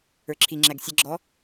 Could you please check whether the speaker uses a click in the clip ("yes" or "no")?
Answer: yes